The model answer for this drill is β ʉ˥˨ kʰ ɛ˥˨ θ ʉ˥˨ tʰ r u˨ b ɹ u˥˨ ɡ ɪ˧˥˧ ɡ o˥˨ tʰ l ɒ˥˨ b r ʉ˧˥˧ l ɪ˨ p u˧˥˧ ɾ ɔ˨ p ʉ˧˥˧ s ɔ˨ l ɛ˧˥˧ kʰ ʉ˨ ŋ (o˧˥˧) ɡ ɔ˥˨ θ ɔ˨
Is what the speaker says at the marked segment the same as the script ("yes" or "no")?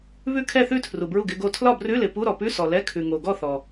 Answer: no